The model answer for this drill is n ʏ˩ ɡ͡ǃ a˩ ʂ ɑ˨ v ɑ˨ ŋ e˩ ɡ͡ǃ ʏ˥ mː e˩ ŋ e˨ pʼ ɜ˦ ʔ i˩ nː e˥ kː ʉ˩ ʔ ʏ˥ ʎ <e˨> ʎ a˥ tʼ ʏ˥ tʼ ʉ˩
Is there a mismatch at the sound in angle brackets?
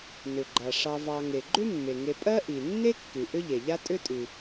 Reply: yes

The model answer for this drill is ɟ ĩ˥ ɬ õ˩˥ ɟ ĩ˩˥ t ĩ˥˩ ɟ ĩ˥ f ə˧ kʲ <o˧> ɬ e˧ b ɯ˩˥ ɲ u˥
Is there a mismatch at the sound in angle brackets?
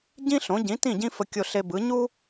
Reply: no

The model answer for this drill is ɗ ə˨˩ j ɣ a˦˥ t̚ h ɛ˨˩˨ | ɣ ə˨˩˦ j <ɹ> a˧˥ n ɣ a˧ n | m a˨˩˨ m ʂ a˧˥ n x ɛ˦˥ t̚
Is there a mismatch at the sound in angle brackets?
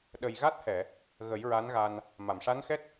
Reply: no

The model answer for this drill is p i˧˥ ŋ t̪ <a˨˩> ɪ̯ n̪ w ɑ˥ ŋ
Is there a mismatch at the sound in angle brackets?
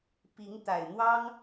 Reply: no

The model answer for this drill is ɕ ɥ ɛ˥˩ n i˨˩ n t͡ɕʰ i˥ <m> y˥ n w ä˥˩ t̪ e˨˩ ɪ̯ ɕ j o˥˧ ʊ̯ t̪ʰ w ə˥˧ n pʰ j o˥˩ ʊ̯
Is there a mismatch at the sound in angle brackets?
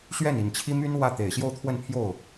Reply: no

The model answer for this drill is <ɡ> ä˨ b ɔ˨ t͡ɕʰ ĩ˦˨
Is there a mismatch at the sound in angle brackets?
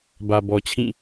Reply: yes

